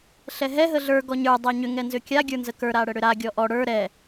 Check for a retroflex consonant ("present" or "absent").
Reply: present